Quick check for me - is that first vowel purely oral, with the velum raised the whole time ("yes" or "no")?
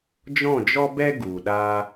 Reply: no